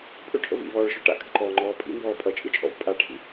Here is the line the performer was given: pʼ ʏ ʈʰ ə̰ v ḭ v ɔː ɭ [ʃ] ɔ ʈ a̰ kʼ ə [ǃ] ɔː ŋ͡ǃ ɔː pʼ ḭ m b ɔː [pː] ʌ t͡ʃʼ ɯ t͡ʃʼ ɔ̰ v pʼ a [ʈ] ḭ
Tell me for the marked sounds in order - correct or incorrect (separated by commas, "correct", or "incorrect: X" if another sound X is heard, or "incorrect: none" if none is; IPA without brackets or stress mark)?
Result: correct, correct, incorrect: pʼ, incorrect: ʈʰ